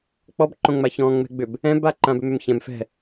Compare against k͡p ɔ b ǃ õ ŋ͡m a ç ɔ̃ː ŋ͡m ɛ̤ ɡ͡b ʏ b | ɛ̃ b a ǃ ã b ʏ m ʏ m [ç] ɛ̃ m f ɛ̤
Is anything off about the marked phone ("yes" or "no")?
no